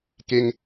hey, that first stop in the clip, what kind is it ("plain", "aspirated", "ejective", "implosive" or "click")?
plain